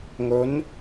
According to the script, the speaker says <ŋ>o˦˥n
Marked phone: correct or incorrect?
correct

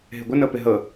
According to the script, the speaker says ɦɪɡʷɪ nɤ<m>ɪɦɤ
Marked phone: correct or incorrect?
incorrect: p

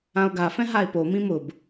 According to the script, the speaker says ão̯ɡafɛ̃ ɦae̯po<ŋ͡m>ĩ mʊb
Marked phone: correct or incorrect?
incorrect: m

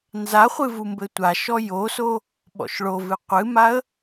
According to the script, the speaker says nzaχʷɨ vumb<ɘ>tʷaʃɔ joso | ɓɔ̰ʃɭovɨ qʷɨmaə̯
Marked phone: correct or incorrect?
correct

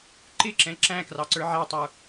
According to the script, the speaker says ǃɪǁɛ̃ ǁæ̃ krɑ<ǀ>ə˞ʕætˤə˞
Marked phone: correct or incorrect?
correct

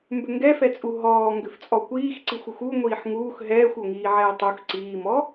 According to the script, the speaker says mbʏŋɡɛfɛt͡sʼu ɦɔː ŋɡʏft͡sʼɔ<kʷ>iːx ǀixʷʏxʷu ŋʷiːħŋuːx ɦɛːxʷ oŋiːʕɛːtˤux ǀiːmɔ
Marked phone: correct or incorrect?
correct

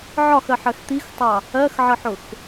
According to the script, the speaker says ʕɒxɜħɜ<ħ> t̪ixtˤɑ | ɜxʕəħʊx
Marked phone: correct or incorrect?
incorrect: x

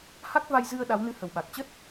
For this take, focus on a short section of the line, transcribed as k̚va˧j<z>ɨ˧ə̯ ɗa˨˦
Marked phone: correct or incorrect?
correct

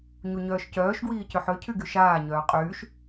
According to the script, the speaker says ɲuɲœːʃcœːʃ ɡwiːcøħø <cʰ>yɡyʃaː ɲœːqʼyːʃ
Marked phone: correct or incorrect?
correct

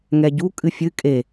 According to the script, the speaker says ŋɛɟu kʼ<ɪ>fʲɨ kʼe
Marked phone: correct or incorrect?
incorrect: ɨ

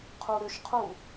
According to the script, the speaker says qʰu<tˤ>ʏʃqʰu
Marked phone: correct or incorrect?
incorrect: ɾ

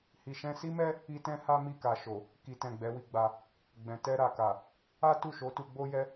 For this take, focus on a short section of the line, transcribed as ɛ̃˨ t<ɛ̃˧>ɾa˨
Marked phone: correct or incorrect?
incorrect: ɛ˧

